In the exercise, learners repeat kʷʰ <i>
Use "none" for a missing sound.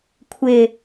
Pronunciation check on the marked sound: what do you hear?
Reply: ɪ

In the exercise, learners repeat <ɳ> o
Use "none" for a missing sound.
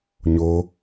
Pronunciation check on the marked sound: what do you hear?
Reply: ɲ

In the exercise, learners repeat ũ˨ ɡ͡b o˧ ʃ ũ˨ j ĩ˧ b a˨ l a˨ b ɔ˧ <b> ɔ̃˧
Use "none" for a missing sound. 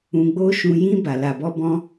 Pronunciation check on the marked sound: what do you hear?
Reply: b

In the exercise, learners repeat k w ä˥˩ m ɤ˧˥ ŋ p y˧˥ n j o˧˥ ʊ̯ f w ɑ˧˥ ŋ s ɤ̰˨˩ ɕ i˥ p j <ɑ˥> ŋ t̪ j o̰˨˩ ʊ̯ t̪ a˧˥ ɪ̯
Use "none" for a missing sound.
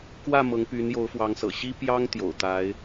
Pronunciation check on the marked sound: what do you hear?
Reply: ɑ˥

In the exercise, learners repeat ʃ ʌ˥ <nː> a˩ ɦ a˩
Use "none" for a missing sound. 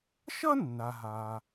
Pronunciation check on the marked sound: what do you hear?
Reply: nː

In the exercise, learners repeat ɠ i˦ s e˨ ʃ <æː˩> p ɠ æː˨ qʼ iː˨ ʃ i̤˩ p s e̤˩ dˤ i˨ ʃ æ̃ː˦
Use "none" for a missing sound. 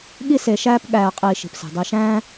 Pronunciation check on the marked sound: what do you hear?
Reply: æː˦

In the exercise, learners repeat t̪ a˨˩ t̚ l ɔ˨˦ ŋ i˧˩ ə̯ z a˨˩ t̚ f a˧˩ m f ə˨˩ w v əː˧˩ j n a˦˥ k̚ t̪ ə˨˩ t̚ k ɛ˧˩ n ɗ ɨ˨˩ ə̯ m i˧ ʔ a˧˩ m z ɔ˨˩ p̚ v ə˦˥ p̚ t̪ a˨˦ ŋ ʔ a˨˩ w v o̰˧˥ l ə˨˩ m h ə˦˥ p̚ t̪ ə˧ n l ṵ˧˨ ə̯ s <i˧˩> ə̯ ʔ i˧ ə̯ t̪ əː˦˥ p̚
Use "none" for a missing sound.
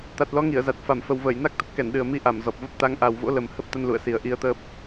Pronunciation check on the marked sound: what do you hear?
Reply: i˨˩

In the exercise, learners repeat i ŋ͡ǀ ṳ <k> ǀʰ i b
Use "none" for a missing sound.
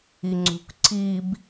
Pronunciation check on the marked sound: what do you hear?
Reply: k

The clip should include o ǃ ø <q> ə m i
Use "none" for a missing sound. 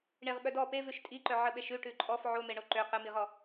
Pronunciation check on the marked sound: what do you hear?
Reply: q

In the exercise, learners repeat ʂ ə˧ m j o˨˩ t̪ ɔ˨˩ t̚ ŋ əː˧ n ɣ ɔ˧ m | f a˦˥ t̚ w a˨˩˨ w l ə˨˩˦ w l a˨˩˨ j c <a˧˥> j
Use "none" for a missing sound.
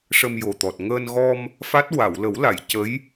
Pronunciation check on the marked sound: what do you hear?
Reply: ə˧˥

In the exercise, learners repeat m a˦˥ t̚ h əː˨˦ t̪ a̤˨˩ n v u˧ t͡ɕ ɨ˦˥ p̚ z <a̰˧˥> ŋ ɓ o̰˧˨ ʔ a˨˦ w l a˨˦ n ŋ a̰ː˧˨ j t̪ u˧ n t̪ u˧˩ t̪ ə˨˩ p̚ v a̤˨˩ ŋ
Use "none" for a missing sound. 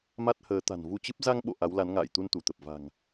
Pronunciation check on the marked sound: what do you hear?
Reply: a˧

